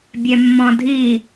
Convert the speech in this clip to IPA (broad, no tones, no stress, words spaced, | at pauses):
bʲɛmːɔ̃dʱi